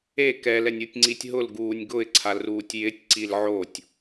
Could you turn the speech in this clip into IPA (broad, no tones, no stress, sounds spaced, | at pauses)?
e k ɛ l ɛ nʲ u tʲ ŋ͡ǀ i tʲ ɦ ʊ l ɡ uː nʲ ɡ ʊ ɪ̯ ǀʰ a l r uː tʲ j ɪ tʲ ǀ i l ʕ o tʲ